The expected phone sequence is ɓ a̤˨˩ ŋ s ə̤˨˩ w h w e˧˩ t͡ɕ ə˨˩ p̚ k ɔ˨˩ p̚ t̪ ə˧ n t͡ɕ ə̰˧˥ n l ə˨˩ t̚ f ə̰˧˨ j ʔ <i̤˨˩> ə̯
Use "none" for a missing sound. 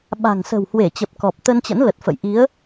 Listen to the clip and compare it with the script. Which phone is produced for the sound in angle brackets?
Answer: i˨˦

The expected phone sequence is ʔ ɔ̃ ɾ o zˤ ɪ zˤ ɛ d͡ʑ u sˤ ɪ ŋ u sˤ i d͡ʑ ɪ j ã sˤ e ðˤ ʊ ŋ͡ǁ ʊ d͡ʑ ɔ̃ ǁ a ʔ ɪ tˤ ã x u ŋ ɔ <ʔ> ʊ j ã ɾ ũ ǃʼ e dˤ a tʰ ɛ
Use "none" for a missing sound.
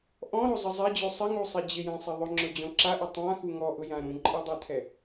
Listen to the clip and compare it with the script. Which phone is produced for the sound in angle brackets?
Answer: ʔ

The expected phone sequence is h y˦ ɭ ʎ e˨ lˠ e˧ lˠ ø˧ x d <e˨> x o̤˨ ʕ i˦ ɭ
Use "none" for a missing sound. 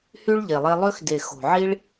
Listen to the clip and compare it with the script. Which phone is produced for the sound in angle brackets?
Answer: e˨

